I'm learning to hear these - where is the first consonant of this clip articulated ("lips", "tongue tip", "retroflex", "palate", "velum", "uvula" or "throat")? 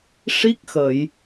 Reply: retroflex